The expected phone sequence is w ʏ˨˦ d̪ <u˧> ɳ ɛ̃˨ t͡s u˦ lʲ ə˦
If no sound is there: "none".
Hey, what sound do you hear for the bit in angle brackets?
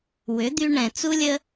y˧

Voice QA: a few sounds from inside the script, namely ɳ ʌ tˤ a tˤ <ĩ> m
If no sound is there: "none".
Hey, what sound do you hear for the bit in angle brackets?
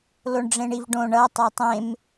ẽ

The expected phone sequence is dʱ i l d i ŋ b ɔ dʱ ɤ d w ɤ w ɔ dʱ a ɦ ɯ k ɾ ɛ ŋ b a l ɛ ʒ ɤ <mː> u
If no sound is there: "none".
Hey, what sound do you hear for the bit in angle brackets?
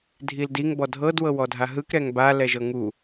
ŋ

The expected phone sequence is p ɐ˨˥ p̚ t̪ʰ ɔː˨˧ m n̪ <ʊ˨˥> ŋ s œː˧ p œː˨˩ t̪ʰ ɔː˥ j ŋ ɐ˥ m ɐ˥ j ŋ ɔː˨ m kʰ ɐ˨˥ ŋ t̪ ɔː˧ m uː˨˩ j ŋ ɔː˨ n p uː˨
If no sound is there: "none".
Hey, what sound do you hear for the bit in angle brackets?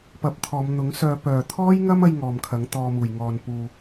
ʊ˨˥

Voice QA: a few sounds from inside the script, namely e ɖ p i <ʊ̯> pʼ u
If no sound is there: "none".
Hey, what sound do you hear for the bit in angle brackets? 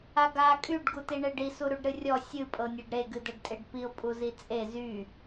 ʊ̯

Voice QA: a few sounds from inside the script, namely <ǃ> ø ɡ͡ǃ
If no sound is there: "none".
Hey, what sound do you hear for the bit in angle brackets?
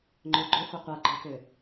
ŋ͡ǃ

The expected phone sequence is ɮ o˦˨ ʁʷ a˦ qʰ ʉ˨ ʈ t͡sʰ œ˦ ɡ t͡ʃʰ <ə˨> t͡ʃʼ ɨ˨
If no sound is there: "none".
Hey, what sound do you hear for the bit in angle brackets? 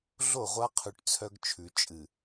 ʉ˨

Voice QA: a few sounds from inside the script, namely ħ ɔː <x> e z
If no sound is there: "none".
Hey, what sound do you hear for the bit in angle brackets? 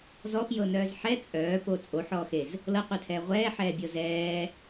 x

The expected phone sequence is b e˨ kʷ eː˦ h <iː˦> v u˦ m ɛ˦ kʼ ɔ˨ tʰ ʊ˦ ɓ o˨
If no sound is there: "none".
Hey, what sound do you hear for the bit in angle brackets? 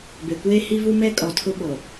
i˦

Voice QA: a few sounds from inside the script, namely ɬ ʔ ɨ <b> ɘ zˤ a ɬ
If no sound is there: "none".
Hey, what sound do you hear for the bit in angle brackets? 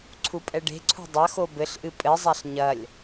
pʼ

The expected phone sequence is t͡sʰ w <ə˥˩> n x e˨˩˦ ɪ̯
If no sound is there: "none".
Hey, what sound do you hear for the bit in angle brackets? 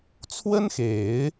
ə˥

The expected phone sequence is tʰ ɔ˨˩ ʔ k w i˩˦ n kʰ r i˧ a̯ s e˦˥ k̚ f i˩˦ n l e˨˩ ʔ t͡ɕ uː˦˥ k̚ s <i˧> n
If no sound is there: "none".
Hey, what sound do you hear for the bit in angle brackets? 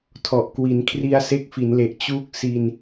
i˧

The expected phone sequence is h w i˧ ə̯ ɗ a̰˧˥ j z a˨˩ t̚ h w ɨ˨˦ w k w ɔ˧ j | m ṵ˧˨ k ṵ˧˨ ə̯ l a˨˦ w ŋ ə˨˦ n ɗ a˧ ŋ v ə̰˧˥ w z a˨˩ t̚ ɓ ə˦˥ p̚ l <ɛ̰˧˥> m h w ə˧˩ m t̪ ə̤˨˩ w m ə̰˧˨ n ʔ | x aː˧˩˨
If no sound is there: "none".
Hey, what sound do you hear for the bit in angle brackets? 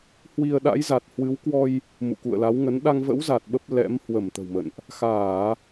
ɛ̰˧˥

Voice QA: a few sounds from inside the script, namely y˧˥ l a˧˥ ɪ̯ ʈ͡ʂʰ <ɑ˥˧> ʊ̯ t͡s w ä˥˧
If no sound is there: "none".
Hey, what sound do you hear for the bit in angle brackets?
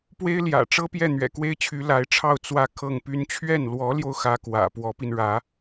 ɑ˥˧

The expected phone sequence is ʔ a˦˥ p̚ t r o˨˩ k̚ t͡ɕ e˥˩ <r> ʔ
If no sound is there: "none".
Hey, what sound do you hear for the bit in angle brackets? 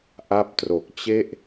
none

